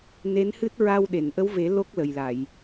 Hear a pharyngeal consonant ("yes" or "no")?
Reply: no